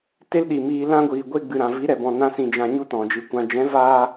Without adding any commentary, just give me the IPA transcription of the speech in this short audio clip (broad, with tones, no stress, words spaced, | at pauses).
te˦lɗi˨miː˧ lã˧ ɡʷiː˨ɡʷe˧ɡ͡bɨ˨ ɾã˨vi˨˦ ɾɛ˨bɔ̃˨ nã˧ sĩ˧d͡ʒã˧ ɲu˦tɔ̃˨d͡ʒɨ˨˦kʷã˧ d͡ʒɛ̃˨˦vaː˧